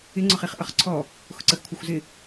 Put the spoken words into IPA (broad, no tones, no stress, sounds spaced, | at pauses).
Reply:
ɪ ŋ͡ǀ ʊ χ i χ ʔ ʌ χ ǀʰ ɔ | x ʊ ǀ ə x kʷʰ ʌ xʷ z ɪ